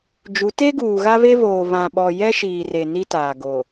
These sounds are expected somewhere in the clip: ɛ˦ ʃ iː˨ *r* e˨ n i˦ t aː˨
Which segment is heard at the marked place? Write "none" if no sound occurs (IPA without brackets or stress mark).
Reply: r